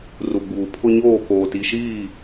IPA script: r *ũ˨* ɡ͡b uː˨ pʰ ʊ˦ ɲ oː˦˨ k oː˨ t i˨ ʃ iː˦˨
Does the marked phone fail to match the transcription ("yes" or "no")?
yes